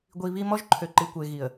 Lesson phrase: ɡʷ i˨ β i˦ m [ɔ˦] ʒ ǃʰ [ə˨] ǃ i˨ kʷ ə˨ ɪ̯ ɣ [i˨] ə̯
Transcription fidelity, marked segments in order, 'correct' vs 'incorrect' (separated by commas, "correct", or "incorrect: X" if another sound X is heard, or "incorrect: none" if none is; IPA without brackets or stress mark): correct, incorrect: ø˨, correct